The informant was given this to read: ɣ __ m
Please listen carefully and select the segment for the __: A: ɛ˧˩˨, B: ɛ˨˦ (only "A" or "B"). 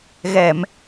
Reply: A